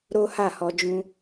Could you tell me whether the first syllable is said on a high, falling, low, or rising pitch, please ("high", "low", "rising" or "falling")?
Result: high